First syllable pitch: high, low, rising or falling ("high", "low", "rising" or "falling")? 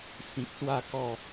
low